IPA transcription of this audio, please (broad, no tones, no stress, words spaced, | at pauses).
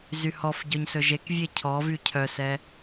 zyhɔfɟœɲ sɵʒekvʲe cʰɔvy cʰœsɛ